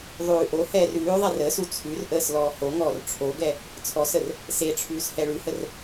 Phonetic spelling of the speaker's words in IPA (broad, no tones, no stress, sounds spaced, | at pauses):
ðˤ ʉː ʔ o h ɛː r ʉː ðˤ ɛ r əː s u t͡sʰ ʉ r ʔ əː s l ɔː h o ŋ ɔː r ʈ͡ʂʰ o ɡ ɛ | t͡sʰ ɔ s ə r | s e ʈ͡ʂʰ ʉː s h ɛ ɭ ʉ h ə r